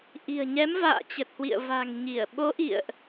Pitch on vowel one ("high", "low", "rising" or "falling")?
low